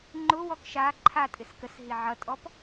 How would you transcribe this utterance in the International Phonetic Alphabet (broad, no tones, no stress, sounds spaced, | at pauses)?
ŋ͡ǃ ʊ w ɔ k ʃ a ǃʰ a tʼ ɪ s k ə s ɦ i ʕ ʌ tʼ ɔ p